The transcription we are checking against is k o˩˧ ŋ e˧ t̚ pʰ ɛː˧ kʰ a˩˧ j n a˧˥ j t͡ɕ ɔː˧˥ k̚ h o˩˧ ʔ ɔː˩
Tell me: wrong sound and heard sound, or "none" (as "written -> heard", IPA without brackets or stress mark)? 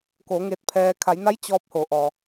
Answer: k̚ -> p̚